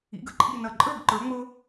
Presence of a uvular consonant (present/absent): absent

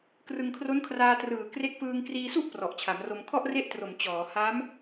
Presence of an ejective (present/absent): absent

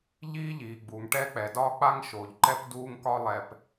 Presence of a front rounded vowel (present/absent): absent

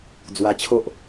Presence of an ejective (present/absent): absent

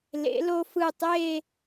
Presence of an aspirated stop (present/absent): absent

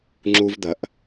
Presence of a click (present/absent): present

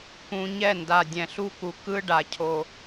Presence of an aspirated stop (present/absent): present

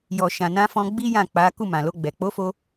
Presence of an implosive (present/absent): absent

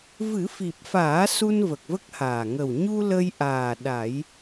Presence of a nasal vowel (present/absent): absent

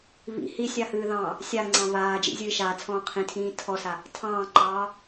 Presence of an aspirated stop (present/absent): present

